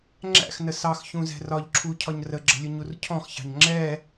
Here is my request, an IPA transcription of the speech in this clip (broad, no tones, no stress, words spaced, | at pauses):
ŋ͡ǁæ̰xnə sɑxçũzɛ̤ rɒʎǁʰucʰɒɲ rəɡ͡ǁə̤lʲʊɲur cʰɔ̃xçɑ̤ɲ ŋ͡ǁɛ